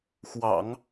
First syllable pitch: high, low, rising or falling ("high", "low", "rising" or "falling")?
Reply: low